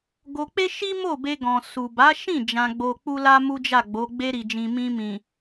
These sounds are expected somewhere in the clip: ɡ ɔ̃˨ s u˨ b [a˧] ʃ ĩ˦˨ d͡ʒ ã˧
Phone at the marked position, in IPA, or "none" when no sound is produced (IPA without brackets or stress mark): a˨˦